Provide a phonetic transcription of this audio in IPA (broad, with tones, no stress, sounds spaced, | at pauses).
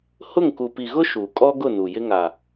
h ʊ˦˨ ŋ k u˨ p i˨ ɣ ʊ˦ ʃ u˨ kʼ ɔ˦ ɡ ʊ˦˨ n u˨ j ɪ˦ ŋ a˨